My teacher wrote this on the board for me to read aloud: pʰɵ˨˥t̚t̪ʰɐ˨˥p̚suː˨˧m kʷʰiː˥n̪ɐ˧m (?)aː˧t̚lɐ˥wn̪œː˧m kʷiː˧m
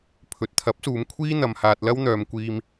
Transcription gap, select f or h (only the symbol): h